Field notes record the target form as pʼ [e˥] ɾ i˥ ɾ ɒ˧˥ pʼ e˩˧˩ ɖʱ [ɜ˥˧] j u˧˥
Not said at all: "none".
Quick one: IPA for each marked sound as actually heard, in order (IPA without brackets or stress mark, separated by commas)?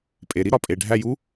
e˩˧˩, æ˥˧